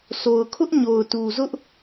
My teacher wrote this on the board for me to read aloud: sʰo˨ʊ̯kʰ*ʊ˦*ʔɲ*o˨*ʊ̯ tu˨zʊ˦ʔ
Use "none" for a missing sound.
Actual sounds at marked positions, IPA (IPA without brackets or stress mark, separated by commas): ʊ˦, o˨